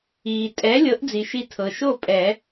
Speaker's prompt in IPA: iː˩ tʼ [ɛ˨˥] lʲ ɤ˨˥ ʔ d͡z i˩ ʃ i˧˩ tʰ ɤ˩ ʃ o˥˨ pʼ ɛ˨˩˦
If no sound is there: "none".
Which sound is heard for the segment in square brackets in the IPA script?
ɛ˨˥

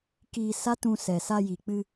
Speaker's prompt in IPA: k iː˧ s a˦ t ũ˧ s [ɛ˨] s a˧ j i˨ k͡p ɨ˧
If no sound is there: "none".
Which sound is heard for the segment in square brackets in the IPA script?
ɛ˨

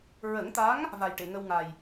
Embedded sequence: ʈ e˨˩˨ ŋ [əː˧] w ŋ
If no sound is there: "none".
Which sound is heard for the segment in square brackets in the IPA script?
ə˧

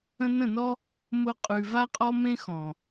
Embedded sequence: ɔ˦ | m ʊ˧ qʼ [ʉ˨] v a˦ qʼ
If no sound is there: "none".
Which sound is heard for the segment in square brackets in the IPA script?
ʉ˨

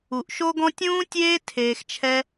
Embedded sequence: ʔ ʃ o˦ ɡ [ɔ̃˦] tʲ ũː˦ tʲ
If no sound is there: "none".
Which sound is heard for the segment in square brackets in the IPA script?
ɔ̃˦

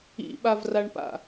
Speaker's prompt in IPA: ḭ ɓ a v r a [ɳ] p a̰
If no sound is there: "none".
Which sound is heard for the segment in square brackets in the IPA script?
ɳ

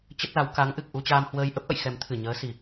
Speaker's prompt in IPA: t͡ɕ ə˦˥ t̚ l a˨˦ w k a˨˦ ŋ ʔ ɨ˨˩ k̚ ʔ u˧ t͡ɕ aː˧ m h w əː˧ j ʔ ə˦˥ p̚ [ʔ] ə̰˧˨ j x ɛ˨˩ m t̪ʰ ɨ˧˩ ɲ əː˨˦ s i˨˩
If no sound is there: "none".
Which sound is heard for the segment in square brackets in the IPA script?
ʔ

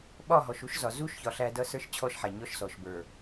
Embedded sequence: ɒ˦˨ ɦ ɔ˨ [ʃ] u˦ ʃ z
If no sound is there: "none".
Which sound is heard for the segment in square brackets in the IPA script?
ʃ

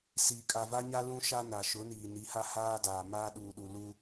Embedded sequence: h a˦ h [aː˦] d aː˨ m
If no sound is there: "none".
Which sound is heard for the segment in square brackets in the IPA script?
aː˦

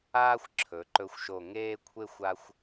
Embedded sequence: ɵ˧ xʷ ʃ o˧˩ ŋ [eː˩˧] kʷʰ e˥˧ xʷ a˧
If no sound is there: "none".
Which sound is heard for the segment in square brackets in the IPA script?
eː˥˧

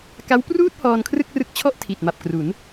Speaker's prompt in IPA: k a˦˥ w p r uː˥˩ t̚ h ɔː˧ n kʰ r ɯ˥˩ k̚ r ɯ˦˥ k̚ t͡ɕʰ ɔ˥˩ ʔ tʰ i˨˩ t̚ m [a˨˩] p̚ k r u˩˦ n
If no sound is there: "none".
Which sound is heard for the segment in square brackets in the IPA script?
a˨˩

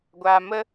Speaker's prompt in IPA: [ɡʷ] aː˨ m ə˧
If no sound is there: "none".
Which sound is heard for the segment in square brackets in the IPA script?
ɡʷ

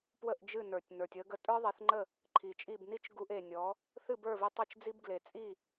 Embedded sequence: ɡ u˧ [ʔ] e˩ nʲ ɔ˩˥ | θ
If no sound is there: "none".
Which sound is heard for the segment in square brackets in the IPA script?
ʔ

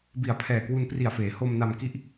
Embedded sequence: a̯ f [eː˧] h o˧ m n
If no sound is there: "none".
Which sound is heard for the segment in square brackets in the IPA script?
eː˩˦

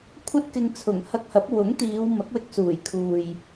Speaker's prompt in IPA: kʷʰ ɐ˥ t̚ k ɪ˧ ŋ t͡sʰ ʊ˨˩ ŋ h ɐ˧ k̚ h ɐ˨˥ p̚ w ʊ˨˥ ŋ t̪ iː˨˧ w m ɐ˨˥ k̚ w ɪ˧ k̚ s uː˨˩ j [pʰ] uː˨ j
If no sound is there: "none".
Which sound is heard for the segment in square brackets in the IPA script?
kʰ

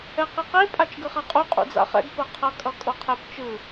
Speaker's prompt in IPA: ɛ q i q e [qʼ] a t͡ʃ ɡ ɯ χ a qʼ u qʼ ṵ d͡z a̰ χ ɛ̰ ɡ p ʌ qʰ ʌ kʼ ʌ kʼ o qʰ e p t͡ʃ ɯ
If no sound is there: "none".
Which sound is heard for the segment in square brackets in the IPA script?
pʼ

